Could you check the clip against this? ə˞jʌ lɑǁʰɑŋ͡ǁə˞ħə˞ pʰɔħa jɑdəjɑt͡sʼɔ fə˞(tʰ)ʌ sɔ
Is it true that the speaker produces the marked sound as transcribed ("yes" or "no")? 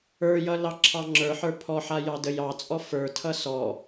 yes